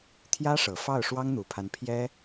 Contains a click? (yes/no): no